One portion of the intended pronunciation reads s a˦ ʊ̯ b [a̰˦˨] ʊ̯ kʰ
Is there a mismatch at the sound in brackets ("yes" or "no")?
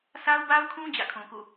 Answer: yes